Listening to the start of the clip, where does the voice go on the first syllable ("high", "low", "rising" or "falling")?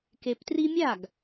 low